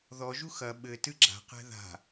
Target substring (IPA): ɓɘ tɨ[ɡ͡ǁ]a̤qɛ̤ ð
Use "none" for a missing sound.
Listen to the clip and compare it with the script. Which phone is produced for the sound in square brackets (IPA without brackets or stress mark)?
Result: ɡ͡ǁ